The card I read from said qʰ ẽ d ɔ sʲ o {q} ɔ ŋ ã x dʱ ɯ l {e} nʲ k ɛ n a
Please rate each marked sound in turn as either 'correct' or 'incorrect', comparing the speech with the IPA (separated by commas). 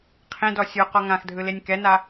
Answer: correct, correct